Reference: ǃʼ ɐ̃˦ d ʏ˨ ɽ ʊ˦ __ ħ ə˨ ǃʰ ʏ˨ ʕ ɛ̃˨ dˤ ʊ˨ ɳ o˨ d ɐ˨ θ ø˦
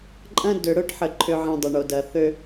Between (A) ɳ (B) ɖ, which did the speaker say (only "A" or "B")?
B